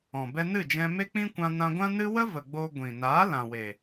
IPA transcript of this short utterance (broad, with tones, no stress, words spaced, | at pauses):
ɔ̃˨bɛ˦ nɨ˦˨d͡ʒɛ̃˧ me˦k͡pĩ˦kʷã˧ nã˧ɡʷã˦nɨ˦ wə˦və˨ ɡ͡bo˧ ɡʷĩ˨naː˨˦ lã˨we˨